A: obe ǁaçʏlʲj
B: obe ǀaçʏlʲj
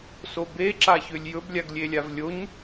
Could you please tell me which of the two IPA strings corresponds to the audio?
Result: A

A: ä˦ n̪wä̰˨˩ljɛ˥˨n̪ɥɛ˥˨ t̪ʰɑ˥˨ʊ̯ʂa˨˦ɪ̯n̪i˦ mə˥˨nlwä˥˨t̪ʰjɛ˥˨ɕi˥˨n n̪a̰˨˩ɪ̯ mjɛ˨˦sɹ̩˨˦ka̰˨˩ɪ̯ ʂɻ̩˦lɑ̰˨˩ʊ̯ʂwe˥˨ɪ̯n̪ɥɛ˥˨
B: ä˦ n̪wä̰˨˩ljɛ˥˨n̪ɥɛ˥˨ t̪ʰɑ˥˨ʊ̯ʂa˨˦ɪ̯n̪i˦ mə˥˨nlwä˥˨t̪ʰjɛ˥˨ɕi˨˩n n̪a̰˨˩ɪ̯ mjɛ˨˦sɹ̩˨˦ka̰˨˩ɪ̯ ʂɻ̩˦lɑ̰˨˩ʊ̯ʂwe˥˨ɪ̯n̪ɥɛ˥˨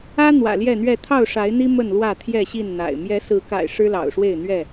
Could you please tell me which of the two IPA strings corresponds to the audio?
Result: A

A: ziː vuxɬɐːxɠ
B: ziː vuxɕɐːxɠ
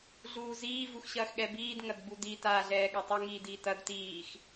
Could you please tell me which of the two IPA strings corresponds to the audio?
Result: B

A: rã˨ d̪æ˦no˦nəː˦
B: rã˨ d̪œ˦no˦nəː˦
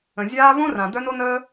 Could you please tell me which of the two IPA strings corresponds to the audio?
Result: B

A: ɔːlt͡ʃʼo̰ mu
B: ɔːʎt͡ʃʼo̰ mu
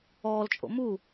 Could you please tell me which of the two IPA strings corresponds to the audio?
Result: A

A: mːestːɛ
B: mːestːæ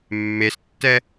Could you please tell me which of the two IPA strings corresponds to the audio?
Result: A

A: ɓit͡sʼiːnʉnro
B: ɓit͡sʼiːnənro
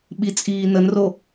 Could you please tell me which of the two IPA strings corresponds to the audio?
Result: B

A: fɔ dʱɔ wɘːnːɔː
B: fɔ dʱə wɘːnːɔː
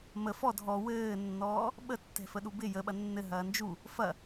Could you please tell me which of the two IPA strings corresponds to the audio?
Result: A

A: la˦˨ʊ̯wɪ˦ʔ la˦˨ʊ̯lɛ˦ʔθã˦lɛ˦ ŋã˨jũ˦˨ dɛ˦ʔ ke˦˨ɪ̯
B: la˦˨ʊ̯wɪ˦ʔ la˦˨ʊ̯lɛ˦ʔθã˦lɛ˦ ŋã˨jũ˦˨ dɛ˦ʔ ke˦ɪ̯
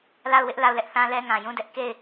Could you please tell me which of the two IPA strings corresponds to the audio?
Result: A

